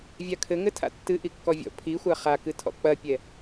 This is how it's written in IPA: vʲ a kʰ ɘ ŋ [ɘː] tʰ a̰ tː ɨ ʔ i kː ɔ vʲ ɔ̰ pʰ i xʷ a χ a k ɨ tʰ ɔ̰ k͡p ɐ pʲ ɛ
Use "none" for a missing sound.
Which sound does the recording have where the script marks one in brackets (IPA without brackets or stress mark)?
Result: ɘ